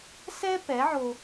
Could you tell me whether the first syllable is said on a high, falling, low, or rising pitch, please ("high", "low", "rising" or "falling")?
high